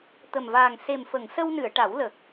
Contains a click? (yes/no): no